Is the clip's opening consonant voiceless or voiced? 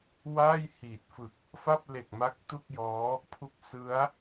voiced